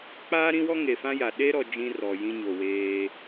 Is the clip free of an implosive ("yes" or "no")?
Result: no